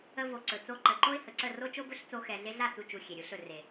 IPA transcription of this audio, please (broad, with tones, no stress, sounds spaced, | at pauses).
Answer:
ə˧ v o˨ ǀ ɵ˨ t͡s o˧ ǃ ə˨ ǃ o˦ ɪ̯ h ə˨ ǀ ə˦˨ r o˦ t͡ʃ o˦ b ɵ˦ ɬ t͡s o˧ x ɛ˨ ɮ e˧ ɮ a˦˨ t͡s u˧ t͡ʃ u˨ xʲ e˨ ɾʲ u˧ ɬ ɵ˦˨ r e˨